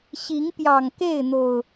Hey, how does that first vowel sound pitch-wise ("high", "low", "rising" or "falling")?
rising